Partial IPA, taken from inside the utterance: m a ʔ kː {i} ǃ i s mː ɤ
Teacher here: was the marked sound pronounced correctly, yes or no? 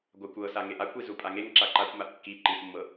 yes